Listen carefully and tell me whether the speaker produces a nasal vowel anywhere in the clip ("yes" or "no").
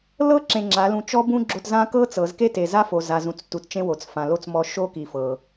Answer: yes